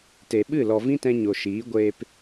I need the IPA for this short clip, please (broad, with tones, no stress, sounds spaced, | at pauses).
t e˨ ɓ ɨ˦˨ l ɔ˨ v ĩ˦ t ɛ̃˧ ɲ o˨ ʃ iː˨˦ ɡʷ eː˧ p